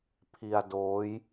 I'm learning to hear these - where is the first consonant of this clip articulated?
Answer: lips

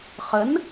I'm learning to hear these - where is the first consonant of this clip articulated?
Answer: uvula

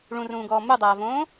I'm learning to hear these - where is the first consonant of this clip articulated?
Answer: retroflex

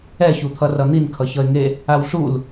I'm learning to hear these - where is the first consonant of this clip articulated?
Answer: palate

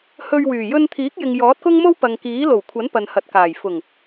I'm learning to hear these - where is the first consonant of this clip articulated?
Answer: throat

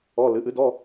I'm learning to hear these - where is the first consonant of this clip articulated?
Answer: tongue tip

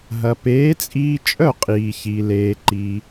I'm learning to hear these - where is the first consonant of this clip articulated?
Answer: throat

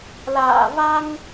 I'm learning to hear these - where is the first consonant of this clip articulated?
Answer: tongue tip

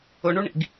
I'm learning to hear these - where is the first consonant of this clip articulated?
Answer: retroflex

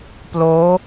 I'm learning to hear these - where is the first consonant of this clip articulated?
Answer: lips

